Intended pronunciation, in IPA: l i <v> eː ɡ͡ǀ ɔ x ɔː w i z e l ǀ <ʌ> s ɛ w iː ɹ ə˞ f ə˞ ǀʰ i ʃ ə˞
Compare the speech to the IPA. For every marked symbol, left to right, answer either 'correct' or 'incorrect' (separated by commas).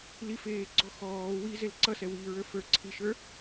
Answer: incorrect, correct